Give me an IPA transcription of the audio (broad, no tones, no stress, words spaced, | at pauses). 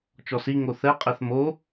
t͡ʃɔsiŋo θɛqʼɛθ mo